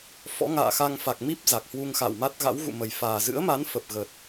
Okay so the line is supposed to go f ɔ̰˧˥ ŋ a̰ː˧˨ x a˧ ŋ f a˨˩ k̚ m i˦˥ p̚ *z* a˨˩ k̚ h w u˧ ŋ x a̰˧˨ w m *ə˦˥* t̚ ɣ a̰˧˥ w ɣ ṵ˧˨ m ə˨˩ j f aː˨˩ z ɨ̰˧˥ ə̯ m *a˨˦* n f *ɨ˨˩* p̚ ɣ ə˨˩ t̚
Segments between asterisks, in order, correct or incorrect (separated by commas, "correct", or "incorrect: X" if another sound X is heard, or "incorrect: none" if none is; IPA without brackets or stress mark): correct, incorrect: a˦˥, correct, incorrect: ə˨˩